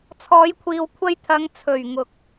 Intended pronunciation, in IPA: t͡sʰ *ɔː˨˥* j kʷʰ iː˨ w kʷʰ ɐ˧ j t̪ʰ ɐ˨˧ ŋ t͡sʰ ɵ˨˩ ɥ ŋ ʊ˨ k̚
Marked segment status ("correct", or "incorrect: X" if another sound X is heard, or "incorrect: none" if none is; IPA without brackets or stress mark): incorrect: ɔː˨˧